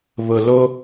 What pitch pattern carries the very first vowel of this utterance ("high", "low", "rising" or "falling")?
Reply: low